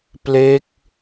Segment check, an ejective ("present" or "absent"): absent